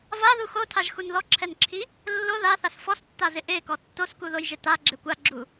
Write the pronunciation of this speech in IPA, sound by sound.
v a ð u x o tʰ a ʒ x u n ð ɔ ǁʰ ɛ n ǁʰ i | lː o ð a θ a s f ɔ s tː a z ɪ ʔ e k ɔ tː o s k u ð o j ʒ ɪ t a ɡ͡ǁ ɪ kʷ a ɡ͡ǁ u

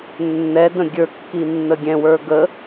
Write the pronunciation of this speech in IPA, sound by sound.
nː ɛ d ə̃ ɡʲ ə˞ kː i nː ə ɡʲ ɛ̃ w ə˞ ɡ ə

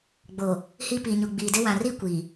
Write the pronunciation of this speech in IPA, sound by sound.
ɡ͡b o˨ | h i˦ p i˨ ɲ u˨ ɡ͡b iː˨ d ɪ˦ w ã˨ r i˦ kʷ i˨

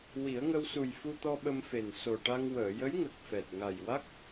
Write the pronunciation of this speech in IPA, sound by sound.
w i˨˩˦ ə̯ ŋ ə˧ w s u˨˩ j f u˧ t̪ ɔ˧ ɓ ə˧ m f e˨˩ n s o˨˩ ʈ a˧ ŋ w əː˨˩˨ j ə˧˥ j ŋ ə˨˩ k̚ f ɛ˨˩ t̚ ŋ a˨˩ j w a˦˥ k̚

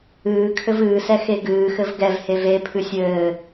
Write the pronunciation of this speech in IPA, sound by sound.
ɨː kʰ ɘ v ɨː s ɛ x e ɡ ɨː x ɘ v ɡ ɛ v h e v e pʰ ɨ sʲ ɘː

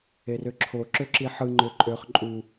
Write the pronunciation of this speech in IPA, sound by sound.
e r ø ǁʰ o ǁ ø ǁ i ħ ɯ ŋ͡ǃ ø ǃʼ ø χ ǃʼ u

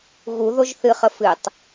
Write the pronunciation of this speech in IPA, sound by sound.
ɣ u ð o ʒ θ ɨ χ ə f ɨ tˤ

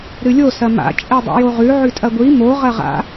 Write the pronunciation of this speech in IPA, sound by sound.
ɾ ɨ lʲ o s ɐ m a̰ t͡ʃʼ e dˤ ḭ j o ʁ ʉ ʕ ʉ tʼ ɐ ɡʷ i m o ʁ ɐ ʁ a̰

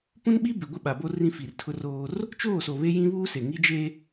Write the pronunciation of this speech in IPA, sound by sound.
p ũ˦ n ɓ i˦ b ɪ˨ ɡʷ ɪ˦ ɓ a˨ b o˦ r ĩ˦ f i˨ r tʰ ʊ˦ r oː˦ r | t͡ʃ oː˦˨ s o˨ β e˦ j ĩ˦ β uː˦ s e˨ ŋ i˦ d͡ʒ e˦

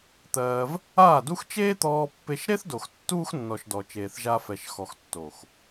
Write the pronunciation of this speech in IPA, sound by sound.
t̪ ɜː˧ v | aː˦˨ d u˦ x t͡ʃ eː˦ t̪ ɔː˧ pː e˧ ʃ ɾ e˦ θ d o˨ x tː uː˦ x nː ɔ˨ ʃ d ɔ˨ t͡ʃ eː˨ θ ʒ a˧ f ɛ˨ ʃ x ɔ˨ x tː o˨ x

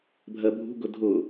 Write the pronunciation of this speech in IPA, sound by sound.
bʱ ɜ bʱ ṳ ɡ ʊ dʱ ʊ

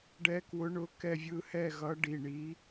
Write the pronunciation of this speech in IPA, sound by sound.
ɖ ɛ˧˥ k w ʊ˧˥ ɳ ʊ˧˥ k ɛ˥˧ vʲ ɯ˥˧ h ɛ˥˧ ɣ ʌ˧˥ ɖ i˩˧˩ ɳ i˧˥

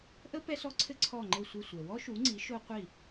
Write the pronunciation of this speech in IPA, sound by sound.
ʔ ə˥ p ɛ˥ s ɔ˥ ǀʰ ɘ˥ ǀʰ ɔ˥˩ ŋ͡ǃ ɘ˥˩ sʷ ɘ˥˩ sʷ ɛ˨ w ɔ˥ ʃ u˩˥ ŋ͡ǀ i˩˥ ʃ o˥ qʷ i˥˩

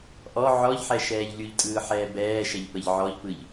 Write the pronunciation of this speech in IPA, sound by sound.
ʔ ɔ ʕ ɔ ʎ ħ ɛ ʃ ɛː ʎ lʲ u ʎ tʼ ɯː ħ ɛː b ɛː ʃ ɛ ʎ p ə ʎ ʕ ɔ ʎ p ɯ ʎ

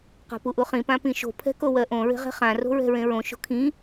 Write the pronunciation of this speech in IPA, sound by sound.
q a̤ p u ʔ u χ ĩ p ã p ĩ ʃ o̤ pʰ ɛ̤ k o w ɜ ʔ õ ɹ e̤ ʁ e̤ χ ã r o̤ ɹ ɛ̤ ɹ ẽ ɹ õ ʃ o̤ kʰ ĩ

